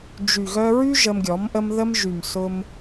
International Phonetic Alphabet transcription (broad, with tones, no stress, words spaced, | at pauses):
d͡ʒy˨ɣœ˧ ɹy˧ ʒə˧mɡʲɔ˨˦mʔə˦m ðə˧mʒy˨m sʊ˦m